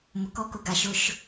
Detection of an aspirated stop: absent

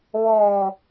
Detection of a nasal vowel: absent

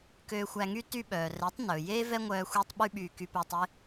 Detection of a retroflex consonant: absent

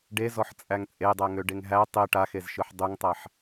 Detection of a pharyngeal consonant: present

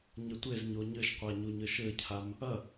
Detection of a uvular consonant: present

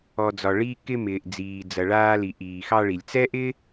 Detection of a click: absent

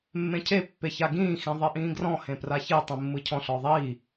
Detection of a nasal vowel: present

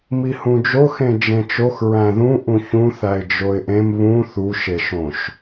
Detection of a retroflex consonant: absent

